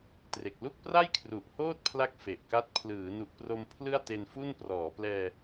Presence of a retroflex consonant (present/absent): absent